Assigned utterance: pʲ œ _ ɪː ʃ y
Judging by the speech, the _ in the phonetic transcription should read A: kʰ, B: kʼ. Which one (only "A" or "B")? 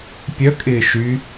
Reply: B